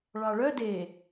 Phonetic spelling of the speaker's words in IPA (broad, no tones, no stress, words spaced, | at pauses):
ɭɑɭœ de